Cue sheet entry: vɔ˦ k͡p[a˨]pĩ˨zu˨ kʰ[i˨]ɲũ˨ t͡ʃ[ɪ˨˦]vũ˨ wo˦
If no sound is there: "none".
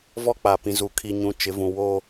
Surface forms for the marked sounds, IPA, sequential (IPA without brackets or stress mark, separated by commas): a˨, i˨, ɪ˨˦